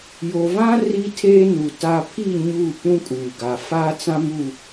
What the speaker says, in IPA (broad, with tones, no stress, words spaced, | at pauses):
jo˨vã˦ ri˦tʰeː˦ nu˨ta˦ pʰi˦˨ ɲu˦˨ pũ˦ kʼuː˨ɡa˨ faː˦t͡sã˦mu˦˨